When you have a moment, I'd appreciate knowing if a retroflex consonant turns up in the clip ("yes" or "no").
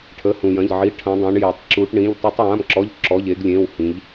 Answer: yes